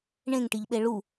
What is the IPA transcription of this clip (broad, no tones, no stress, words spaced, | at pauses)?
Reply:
ɳẽŋʈiʎɓe ɭu